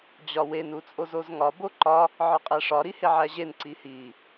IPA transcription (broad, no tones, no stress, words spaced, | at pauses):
d͡ʑɒwen ut͡sʼozozŋɒ boǃɒ | ʕɒqʼæʂɒ ɾiheʕæʑen ǀihi